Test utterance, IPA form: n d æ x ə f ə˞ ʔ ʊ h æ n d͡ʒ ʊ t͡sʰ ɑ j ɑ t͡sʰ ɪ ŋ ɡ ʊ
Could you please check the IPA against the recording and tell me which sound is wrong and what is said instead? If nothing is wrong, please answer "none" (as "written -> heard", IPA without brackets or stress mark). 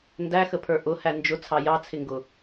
f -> pʰ